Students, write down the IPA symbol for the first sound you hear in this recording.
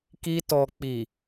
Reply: k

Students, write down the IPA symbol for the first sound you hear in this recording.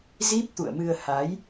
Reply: z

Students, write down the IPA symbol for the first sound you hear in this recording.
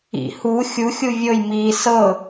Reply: ḭ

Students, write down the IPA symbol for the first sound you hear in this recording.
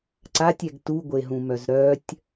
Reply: ǀ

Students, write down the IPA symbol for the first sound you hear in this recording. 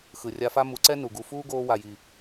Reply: x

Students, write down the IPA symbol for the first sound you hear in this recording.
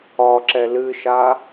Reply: ɒ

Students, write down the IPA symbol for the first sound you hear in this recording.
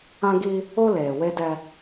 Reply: ã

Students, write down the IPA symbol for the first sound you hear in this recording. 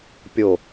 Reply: pʲ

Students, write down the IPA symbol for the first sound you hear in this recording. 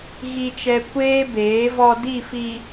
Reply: ɣ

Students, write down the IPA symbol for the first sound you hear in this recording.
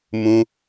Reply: m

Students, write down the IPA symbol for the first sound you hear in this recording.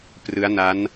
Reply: p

